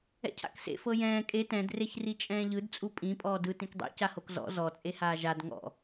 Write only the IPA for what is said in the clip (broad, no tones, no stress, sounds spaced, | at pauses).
ɛ̰ cʰ a̰ k s ḛ f ɤ j ɛ̃ː kʼ e t ɛ̃ d r e ç r i t͡ʃʼ ɛ̃ː ʎ ɯ d t͡sʼ u pʼ ĩ pʼ ɔː d ɯ t ĩ k dˤ ḛ c a h o k z ɔ̰ z ɔ t͡sʼ e h aː ʒ a d ŋ ɔ̰